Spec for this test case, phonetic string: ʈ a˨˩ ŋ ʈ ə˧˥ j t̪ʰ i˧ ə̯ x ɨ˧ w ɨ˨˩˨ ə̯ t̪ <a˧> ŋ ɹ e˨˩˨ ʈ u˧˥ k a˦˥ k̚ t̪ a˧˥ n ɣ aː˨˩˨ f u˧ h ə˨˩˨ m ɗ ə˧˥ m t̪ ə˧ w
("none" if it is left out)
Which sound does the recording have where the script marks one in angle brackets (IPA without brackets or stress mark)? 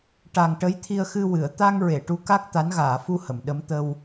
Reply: a˧